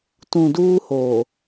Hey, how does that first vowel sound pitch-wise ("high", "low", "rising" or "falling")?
low